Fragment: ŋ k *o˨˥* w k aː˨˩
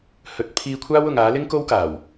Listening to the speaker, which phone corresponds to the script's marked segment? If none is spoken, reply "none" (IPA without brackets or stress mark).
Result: o˥